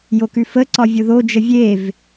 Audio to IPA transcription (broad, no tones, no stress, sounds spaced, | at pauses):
j o k ʉ f ə ǀ ɒ vʲ ʊ ð o d͡ʒ ə vʲ e v